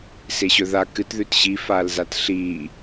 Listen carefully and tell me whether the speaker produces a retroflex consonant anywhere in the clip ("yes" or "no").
no